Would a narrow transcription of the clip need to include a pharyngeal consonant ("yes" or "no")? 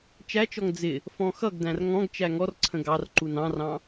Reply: no